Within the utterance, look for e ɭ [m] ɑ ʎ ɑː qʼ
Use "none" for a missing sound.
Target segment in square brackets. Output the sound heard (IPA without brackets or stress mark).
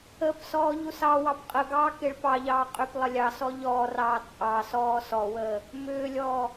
p